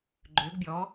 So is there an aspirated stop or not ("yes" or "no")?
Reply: no